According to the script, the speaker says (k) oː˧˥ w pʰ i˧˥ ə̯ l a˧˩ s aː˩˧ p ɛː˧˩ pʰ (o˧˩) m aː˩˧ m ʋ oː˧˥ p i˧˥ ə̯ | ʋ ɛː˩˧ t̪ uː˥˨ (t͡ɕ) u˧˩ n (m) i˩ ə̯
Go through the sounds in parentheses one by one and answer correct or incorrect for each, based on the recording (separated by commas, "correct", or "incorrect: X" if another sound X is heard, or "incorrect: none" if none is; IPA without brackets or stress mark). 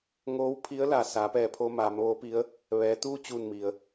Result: incorrect: ŋ, incorrect: o˧, correct, correct